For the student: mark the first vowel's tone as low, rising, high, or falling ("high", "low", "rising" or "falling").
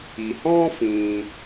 low